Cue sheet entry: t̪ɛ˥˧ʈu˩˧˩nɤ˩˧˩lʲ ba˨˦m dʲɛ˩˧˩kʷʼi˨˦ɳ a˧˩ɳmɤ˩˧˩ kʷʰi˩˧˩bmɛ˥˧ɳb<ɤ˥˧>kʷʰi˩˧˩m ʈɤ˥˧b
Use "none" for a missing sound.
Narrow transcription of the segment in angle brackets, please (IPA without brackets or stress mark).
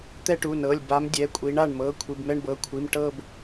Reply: ɤ˩˧˩